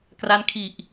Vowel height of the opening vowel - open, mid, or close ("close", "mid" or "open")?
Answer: open